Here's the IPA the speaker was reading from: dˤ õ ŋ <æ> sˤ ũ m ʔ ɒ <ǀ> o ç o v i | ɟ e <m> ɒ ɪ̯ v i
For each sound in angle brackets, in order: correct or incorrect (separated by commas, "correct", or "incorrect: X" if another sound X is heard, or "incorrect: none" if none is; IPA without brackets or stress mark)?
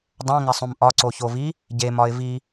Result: correct, correct, correct